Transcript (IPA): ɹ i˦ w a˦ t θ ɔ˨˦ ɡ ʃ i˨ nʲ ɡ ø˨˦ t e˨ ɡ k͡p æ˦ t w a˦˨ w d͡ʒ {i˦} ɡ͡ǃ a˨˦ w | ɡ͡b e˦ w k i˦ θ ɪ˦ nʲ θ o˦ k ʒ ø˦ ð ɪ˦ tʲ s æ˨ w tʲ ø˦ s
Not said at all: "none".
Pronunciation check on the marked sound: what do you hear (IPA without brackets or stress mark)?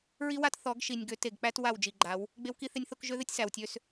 i˨